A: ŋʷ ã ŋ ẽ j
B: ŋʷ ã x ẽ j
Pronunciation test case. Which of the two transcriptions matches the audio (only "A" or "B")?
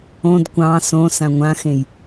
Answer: B